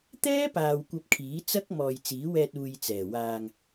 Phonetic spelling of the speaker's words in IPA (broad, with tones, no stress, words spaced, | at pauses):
t̪ɛː˥paː˨w kʷɐ˧p̚kʰiː˨˥t͡sɐ˥k̚mɔː˨j t͡siː˨˥wɛː˧t̚uː˨j t͡sɛː˨˩waː˧ŋ